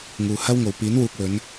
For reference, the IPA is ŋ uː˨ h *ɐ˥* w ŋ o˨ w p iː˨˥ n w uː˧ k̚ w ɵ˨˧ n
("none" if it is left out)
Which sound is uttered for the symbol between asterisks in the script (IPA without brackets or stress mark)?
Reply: ɐ˥